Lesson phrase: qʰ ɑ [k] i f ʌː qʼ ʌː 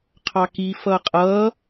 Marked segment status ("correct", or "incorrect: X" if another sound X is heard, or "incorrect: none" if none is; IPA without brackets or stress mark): correct